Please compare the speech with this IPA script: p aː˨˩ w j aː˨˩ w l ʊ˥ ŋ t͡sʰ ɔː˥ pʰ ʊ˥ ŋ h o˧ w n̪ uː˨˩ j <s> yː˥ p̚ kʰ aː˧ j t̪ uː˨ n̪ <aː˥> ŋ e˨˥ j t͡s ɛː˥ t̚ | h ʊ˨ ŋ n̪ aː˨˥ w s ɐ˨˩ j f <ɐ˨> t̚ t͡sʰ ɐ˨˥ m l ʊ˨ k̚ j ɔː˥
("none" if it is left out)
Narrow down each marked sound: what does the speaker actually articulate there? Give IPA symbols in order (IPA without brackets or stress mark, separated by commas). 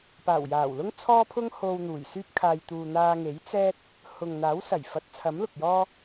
s, aː˧, ɐ˨˥